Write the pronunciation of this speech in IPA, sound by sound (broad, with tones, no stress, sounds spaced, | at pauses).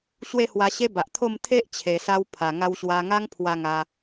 ɕ w e˥˧ h w a˧ ɕ e˦ b a˨ ʔ t̪ʰ o˥˧ m t̪ʰ e˦ ʔ t͡ɕʰ e˨˩ s a˧ w pʰ a˨˩ ŋ a˧ w ɕ w a˧ ŋ a˦ ŋ pʰ w a˧ ŋ a˧